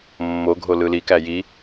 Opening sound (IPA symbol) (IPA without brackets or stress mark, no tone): mː